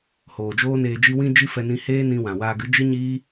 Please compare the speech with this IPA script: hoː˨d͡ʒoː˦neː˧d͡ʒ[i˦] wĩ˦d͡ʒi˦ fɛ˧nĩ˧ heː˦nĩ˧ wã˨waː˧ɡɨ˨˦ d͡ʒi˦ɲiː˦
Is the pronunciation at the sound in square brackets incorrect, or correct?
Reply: correct